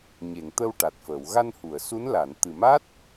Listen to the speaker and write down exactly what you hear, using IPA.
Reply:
ɲ e˨˩˨ ŋ t̪ ə˧ w ʈ a˨˩ t̚ f əː˨˩˨ w ɣ a˧ n h u˨˩˨ ə̯ s u˧˥ n l a˨˩˨ n t̪ ɨ˨˩ m a˦˥ t̚

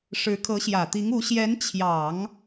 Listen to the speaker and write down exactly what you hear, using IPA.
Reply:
ʂ ɻ̩˧˥ kʰ ɤ˧˥ ɕ j ä˨˩ t̪ i˧˥ ŋ u˧˥ ɕ j ɛ˧˥ n t͡ɕʰ j ɑ˨˩˦ ŋ

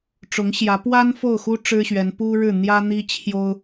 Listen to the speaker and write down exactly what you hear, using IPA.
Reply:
ʈ͡ʂ ʊ˧˥ ŋ ɕ j ä˧˥ p w a˥ n f o˥˩ ʊ̯ x u˥ ʈ͡ʂ ɻ̩˥ ɕ ɥ ɛ˧˥ n p u˥ ɻ ɻ̩˥˩ n̪ j ä˥ n̪ i˥ t͡ɕʰ j o˥ ʊ̯

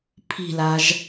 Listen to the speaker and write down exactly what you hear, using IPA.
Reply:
pʰ i̤ l a ʒ

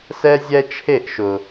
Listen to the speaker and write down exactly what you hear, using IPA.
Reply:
s ɛ˦ zʲ ɛ˦ t͡ʃʰ e˦˨ ʔ ʃ ʊ˨

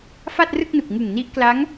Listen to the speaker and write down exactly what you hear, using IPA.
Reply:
f a˥˩ t̚ r ɯ˥˩ k̚ n u˨˩ k̚ ŋ ɯ˨˩ ŋ n i˦˥ ʔ k l a˦˥ ŋ

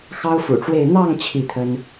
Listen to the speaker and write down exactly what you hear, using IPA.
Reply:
x ɑ˥ ʊ̯ f ṵ˨˩ ʈ͡ʂ w e˥˧ ɪ̯ n̪ ɑ˥˧ ŋ t͡ɕʰ i˥˩ t̪ʰ ə˥ n

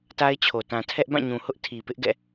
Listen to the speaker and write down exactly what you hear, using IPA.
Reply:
t a˦ ɪ̯ t͡ɕʰ o˨ t ã˨ tʰ ɛ˦ ʔ b ã˦˨ ɲ ũ˨ h ʊ˦ ʔ tʰ i˨ p ɪ˦ ʔ ɡ ɛ̰˦˨

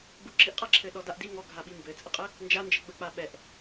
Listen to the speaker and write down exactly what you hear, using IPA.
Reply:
ɡ͡b u ǁ i ʔ qʼ a ǁʰ ɘ ɗ ɔ d a ʔ d i ŋ ɔ ɡʱ a ɓ i m b ɘ t͡sʼ ə qʼ ɘ | n d͡ʒ a n d͡ʒ ə ɡ͡b ə k͡p a ɓ ɛ ʔ

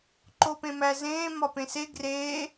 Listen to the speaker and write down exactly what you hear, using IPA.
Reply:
ǃ o p ẽ m æ z ẽː m ɒ p ẽ s e ɡ r eː

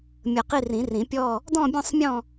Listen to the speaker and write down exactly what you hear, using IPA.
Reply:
mʲ ə˨˩˦ q i˦˨ r ĩ˨˩˦ r ĩ˨˩˦ pʲ ɔ˦˨ | d ɔ̃˦˨ bʲ ɔ̃˦˨ sˤ mʲ ɔ̃˦˨

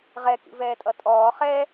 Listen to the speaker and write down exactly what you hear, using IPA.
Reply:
ʁ ɛ k ḭ v ɛː tʼ ʌ tʼ ɔː χ ɛ

